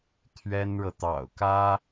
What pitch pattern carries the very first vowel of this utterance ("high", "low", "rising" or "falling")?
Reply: high